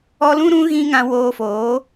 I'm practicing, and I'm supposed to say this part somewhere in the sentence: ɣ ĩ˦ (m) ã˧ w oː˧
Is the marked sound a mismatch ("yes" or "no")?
yes